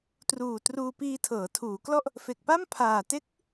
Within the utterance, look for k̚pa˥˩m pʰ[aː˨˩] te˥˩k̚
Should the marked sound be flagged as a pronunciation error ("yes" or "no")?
no